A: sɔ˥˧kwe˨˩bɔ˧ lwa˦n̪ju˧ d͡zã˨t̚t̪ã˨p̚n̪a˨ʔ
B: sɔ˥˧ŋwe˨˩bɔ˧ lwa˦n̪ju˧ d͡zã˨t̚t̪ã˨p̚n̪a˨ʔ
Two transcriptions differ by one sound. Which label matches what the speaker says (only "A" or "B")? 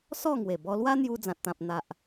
B